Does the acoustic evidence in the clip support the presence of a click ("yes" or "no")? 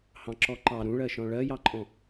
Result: yes